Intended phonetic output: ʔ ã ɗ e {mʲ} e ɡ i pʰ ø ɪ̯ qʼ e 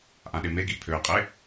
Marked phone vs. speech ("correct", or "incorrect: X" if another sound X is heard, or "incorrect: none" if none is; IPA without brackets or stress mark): incorrect: m